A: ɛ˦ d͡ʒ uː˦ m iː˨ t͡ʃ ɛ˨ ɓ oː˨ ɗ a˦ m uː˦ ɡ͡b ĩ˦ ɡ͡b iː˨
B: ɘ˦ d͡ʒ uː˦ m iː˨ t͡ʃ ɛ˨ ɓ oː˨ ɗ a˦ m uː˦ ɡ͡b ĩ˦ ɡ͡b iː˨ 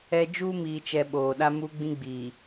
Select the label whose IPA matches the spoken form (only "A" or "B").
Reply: A